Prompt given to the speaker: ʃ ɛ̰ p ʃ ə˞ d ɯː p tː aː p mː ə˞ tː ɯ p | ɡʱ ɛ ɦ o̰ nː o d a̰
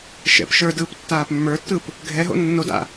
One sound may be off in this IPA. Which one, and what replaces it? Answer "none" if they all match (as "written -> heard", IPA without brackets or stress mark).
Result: none